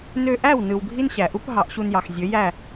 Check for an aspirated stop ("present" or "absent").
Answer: absent